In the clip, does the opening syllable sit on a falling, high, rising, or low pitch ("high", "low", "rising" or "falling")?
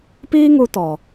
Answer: high